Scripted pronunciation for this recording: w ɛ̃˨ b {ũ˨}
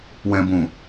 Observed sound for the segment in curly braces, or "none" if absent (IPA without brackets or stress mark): ũ˨